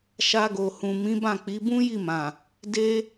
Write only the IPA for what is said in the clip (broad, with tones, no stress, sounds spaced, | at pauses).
ʃ a˧ ɡ o˨ h ũ˨ m ĩ˨˦ b ã˦˨ k͡p i˨˦ b ũ˦ j i˦˨ m ã˨ | d e˦